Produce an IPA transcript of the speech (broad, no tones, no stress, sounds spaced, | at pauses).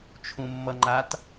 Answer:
t͡ʃʰ ũ mː ʌ ŋ͡ǃ a t